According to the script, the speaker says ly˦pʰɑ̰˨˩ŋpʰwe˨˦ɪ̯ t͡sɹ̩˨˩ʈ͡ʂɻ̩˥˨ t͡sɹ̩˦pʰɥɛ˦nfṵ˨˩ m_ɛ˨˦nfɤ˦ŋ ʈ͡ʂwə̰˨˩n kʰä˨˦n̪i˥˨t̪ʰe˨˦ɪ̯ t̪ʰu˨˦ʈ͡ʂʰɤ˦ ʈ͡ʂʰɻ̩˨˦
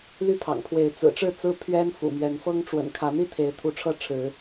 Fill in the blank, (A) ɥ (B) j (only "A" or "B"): A